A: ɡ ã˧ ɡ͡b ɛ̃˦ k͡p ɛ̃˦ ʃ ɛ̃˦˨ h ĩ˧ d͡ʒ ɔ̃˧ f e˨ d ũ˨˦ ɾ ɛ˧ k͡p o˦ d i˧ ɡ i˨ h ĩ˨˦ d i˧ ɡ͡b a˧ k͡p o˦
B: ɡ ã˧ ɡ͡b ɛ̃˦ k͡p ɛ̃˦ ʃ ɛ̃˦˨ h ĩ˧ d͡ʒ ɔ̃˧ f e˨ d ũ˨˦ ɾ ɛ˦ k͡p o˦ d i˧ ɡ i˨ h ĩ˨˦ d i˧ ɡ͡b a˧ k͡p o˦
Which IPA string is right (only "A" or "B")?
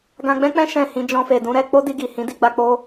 A